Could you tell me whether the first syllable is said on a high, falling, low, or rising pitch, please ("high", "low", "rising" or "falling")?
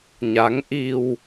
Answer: rising